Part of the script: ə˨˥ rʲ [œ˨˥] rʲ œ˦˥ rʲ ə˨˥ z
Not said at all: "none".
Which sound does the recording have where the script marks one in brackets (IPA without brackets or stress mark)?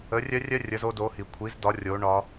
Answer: œ˦˥